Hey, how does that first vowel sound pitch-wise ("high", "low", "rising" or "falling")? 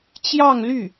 falling